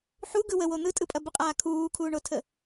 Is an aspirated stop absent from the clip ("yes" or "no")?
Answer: no